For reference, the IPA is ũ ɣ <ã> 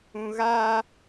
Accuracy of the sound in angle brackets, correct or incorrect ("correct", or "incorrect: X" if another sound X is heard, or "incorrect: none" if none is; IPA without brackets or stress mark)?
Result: incorrect: a